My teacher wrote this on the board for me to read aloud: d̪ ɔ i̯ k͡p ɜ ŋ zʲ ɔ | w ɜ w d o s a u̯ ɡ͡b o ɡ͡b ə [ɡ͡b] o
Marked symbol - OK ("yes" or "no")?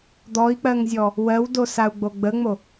no